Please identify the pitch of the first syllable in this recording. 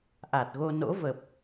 low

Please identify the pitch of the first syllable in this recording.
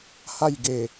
falling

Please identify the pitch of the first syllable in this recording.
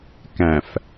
low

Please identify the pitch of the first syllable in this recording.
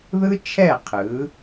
high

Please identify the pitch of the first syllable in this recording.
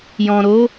low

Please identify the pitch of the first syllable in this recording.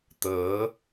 rising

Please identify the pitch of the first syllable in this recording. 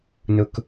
low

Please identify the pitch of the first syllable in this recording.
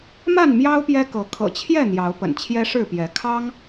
falling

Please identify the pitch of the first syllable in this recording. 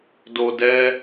low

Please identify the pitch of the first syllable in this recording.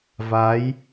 rising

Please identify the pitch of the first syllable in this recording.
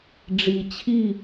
low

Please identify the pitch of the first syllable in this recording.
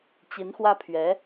rising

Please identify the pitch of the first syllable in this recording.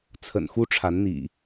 low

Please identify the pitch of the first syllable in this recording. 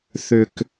low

